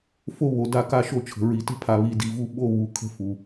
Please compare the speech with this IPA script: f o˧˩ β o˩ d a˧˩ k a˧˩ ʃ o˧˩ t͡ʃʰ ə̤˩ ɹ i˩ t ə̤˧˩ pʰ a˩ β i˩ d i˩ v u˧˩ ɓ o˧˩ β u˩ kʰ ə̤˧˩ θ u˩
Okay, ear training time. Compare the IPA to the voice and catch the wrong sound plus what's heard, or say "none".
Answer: θ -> f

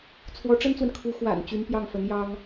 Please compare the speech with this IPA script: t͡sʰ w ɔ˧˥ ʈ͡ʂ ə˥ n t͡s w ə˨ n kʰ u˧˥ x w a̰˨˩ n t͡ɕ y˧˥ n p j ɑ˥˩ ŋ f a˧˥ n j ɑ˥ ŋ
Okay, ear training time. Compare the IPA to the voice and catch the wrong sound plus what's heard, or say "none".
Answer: a˧˥ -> ə˧˥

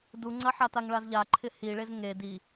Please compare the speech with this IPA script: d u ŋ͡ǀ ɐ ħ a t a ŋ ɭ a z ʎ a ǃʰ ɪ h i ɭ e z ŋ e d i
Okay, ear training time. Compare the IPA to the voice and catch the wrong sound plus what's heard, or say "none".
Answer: none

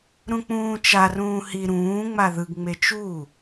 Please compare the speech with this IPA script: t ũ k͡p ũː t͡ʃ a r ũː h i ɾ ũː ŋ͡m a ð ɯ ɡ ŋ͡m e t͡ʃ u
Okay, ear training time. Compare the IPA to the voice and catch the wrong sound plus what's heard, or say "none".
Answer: t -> ɾ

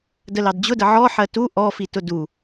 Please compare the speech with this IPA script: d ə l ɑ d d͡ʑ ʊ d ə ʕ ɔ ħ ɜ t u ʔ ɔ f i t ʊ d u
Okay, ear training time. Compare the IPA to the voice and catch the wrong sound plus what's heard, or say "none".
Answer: none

